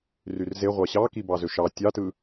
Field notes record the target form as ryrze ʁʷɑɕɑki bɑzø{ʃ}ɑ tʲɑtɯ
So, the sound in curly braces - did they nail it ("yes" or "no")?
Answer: yes